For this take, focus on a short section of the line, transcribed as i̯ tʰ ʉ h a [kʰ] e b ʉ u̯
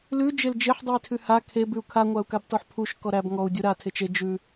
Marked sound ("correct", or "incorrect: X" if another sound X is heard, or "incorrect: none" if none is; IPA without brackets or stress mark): correct